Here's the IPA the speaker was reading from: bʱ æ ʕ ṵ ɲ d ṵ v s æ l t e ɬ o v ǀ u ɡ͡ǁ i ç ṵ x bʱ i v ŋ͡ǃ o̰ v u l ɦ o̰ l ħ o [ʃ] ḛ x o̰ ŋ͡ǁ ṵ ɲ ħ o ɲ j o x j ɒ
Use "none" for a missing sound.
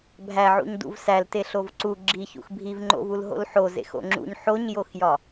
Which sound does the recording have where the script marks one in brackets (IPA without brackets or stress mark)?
z